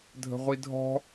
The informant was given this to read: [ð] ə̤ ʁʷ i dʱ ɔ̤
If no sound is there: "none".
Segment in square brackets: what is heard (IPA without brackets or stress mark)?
dʱ